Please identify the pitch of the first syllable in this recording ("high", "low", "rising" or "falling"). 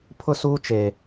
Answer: high